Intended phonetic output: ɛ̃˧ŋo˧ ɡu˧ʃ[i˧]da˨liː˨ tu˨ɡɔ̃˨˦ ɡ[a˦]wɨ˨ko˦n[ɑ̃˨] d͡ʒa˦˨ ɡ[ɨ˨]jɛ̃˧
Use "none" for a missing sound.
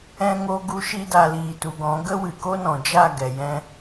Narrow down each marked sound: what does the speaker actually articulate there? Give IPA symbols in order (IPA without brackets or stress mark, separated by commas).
i˧, ə˦, ɔ̃˨, ɛ˨